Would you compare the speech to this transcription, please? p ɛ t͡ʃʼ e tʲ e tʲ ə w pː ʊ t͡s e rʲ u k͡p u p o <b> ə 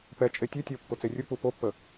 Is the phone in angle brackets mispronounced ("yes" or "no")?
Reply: yes